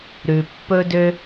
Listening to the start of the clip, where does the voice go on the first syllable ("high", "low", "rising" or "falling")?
low